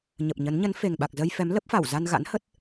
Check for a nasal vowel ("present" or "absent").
absent